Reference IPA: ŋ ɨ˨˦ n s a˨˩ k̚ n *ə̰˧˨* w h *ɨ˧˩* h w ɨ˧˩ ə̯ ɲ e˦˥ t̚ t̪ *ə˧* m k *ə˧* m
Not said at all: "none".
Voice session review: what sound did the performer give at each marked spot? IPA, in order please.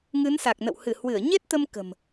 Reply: ə̰˧˨, ɨ˧˩, ə˧, ə̤˨˩

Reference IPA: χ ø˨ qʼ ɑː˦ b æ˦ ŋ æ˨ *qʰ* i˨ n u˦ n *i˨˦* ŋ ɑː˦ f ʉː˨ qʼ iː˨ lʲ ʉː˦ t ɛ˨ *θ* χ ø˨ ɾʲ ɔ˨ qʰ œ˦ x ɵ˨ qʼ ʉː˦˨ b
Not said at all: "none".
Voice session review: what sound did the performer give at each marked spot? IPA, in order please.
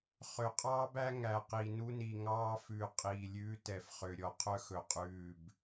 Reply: q, i˨, f

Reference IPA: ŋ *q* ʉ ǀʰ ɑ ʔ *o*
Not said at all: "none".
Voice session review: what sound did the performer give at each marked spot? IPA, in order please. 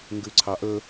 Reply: ɡ, ɵ

